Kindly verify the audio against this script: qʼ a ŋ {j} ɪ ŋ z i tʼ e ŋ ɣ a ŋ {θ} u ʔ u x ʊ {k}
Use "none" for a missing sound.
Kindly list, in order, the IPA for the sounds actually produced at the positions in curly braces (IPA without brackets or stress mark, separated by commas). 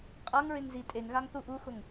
ɹ, θ, ŋ